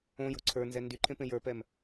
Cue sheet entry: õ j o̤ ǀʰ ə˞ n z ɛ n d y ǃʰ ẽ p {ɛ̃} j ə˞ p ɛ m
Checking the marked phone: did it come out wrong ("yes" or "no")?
yes